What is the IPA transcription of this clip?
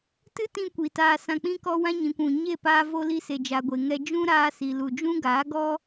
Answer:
t ɨ˦ t ĩ˧ kʷ i˨ t aː˧ s ã˧ k͡p ĩ˦ k ɔ˦ w ã˦ ɲ ĩ˨ kʷ ũ˨ ɲ e˦˨ p aː˧ v o˧ l i˧ s e˨ d͡ʒ a˨ ɡʷ e˨ ŋ ɛ˧ d͡ʒ ũ˦ ɾ aː˧ s i˨ l u˨ d͡ʒ ũ˦ ɡ aː˨˦ ɡ ɔ˦

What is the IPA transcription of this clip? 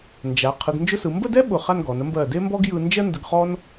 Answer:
n d͡ʒ a˩˧ qʰ ɯ˩˧ ɡ n d͡ʒ ʊ˥ s ɯ˩˧ m b ə˥˧ d ɛ˥ ɓ ʊ˧˩ χ a˥˧ n ɡ ɔ˩˧ n ə˥ m b ɜ˧˩ d e˥ m b ɔ˥ ɡ j ɯ˧ n d͡ʒ ɜ˥ n d ə˧ ɡ χ ɔ˥ n

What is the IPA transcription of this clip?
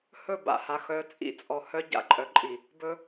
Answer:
h ɵ˦˨ b a̰˨ h a˨ x œ˨˦ t͡sʼ ḭ˦˨ t͡sʼ ɔ˨ h œ˦ ɟ a̰˦ ǃʼ œ˨ ǃʼ i˨ | b ɵ˦

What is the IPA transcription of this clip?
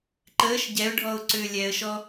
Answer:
ǃ əː ʃ ɟ ɛ ʊ̯ ɖʱ ɔ ʊ̯ ǀ ʏː lʲ ɛ ə̯ ʃ ɔ

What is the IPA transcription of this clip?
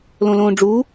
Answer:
l õ l õː ɖ͡ʐ u

